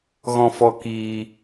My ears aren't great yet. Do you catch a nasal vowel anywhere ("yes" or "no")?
yes